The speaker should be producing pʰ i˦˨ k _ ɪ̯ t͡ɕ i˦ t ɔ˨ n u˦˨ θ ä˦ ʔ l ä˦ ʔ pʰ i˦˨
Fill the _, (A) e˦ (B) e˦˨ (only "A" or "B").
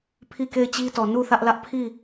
B